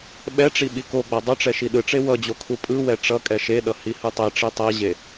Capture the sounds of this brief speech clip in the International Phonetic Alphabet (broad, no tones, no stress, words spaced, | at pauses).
ɓɛʈ͡ʂi ɓikoɡ͡ba dˤɯʈ͡ʂɛ ʃiɗɯʈ͡ʂe wʌd͡ʑo kʰupʼɯwɛ ʈ͡ʂʌ kʼɛʃeɗʌ hihɯtˤeʈ͡ʂi tˤɛʑe